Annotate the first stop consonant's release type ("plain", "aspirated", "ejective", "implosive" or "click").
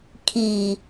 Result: aspirated